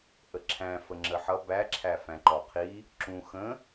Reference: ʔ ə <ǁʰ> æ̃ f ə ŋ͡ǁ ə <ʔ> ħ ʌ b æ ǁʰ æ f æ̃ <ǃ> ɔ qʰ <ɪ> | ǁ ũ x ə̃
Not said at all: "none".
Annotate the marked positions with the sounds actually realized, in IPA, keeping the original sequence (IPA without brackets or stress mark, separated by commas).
ǁʰ, none, ǃ, i